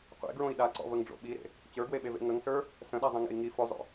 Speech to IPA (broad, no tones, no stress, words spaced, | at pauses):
qʷḛɡɹõi̯ ɗaǀɔ̰vəŋɖ͡ʐo̰ ɓiɾḛ | t͡ɕə˞ɡweɓevḛ ŋəŋsə˞ | sə̃ɗazˤə̃ŋḛi̯ ŋi fozˤo̰